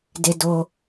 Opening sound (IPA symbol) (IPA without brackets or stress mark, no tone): d